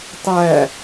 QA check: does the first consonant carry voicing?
no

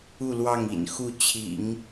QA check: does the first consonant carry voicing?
yes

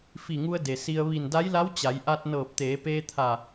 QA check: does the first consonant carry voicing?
no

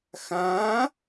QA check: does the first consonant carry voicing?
no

